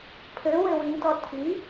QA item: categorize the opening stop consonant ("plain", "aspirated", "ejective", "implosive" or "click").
aspirated